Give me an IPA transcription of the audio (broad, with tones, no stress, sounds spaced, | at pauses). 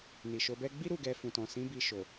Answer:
n i˨ ʃ o˧ b ɛ˦ ɡ͡b i˦ ɾ u˦˨ ɡ ɛ˧ f ũ˨ t ɔ̃˨ s ĩ˨˦ b i˧ ʃ o˨